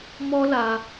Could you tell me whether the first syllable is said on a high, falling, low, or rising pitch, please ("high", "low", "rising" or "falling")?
high